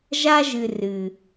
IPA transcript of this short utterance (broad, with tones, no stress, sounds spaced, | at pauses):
ʒ a˦ ʒ ɨ˧ r ɨ˨